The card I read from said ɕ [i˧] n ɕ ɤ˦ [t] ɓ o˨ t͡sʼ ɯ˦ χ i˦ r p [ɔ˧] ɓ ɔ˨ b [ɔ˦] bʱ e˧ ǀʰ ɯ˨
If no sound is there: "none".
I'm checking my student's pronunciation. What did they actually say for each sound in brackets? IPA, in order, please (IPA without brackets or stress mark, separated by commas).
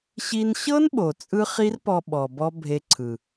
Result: i˧, n, ɔ˧, ɔ˦